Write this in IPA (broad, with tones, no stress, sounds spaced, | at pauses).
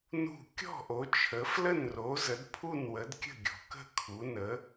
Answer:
n ṳ˥˨ kʲ ɔ̤˥˨ ʔ o˨˦ t͡ʃʰ ə˨˦ f l ə˥˨ n r o˨˦ z ə˨˦ d pʰ u˥˨ n w ə˨˦ d kʲ ə̤˥˨ ɡʲ ɔ̤˨˦ k ə̤˥˨ kʰ u˨˦ n ə˨˦